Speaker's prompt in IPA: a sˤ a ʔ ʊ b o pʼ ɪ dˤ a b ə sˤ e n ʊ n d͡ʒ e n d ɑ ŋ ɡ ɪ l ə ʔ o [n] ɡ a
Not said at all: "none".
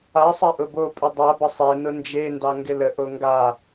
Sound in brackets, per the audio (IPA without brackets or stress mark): ŋ